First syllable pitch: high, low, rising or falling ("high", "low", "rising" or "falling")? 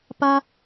high